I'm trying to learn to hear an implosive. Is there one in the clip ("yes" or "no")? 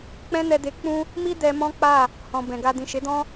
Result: no